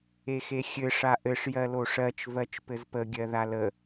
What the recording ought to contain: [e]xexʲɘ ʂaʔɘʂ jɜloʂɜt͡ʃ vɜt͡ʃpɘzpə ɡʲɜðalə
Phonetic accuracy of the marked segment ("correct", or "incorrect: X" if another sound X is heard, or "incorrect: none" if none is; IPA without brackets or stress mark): correct